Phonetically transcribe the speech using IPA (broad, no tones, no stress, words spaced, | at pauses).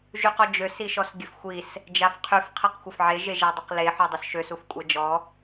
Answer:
ʒyqɔd͡ʒøs iʃɔsɡʲəfxʷis | d͡ʒafqʰyf qʰeqxʷafʕe ʒeʒadˤəqle ħɔdˤœsʃøs ufkʷʼɛd͡ʒɔ